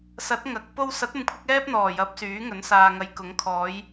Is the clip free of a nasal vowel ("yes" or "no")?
yes